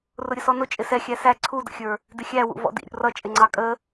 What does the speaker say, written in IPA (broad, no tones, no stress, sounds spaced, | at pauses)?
r ʊ ɾʲ ə s ɔ n ʊ t͡ʃʼ ɪ s ɛ xʲ æ s æ ǀʰ u d ə̰ xʲ ə˞ | d ɪ xʲ æ w ṵ v ɔ̰ d ḭ ɾʲ ṵ r ʌ t͡ʃʼ ɪ ŋ͡ǀ ɑ kʼ ə